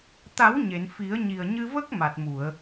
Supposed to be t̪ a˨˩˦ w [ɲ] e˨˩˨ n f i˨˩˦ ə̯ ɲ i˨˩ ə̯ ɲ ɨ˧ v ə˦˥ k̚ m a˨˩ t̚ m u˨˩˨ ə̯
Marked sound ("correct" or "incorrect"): correct